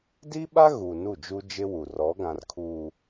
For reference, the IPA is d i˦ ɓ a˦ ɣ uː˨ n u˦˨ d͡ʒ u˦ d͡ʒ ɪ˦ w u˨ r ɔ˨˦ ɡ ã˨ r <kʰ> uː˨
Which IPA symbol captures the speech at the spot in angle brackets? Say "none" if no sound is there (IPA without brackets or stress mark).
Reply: kʰ